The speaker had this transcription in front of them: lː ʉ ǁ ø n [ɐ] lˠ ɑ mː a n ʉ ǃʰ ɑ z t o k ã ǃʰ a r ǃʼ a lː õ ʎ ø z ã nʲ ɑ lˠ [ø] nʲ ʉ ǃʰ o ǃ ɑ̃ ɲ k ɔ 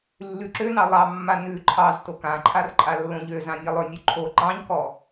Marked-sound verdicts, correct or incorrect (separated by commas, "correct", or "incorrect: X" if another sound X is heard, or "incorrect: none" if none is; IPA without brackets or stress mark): incorrect: ɑ, correct